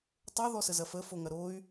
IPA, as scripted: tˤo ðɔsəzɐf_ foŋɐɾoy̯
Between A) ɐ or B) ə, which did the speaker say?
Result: B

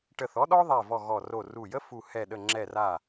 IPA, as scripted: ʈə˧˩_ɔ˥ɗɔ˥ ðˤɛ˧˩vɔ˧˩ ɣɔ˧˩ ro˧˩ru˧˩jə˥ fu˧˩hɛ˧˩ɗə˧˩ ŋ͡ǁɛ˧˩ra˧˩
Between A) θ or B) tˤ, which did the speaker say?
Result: A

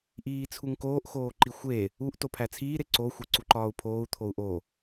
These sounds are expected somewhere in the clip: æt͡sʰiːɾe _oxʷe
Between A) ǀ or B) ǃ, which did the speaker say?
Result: A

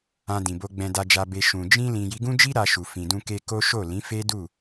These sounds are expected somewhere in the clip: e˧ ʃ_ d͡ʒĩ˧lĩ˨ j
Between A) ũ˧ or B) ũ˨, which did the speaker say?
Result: B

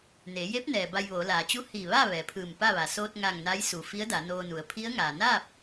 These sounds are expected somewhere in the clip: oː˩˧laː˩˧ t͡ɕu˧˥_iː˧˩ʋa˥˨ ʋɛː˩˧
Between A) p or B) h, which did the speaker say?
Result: B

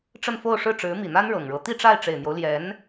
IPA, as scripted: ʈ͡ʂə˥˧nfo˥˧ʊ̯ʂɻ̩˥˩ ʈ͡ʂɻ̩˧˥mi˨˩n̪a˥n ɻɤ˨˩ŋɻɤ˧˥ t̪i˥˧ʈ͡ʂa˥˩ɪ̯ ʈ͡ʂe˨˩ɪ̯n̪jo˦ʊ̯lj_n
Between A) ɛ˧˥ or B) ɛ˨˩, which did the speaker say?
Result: A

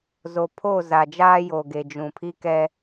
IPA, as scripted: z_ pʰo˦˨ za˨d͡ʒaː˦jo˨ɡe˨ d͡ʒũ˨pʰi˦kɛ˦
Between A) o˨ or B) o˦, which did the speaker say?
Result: A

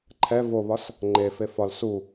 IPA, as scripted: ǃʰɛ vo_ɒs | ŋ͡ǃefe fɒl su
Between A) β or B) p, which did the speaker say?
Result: A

